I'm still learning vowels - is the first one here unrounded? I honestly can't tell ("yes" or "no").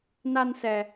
yes